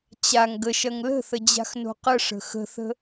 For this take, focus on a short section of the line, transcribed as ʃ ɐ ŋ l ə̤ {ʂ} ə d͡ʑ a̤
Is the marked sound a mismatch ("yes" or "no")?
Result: yes